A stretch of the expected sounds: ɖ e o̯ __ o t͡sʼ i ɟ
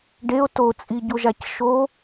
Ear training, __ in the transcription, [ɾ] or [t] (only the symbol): t